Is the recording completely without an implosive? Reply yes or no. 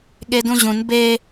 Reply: no